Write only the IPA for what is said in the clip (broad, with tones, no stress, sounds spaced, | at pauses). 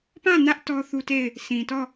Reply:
p ã˦˨ n ä˦ ʔ t ɔ˦ θ u˦ t e˦˨ ɪ̯ | s ĩ˨ t ɔ˦˨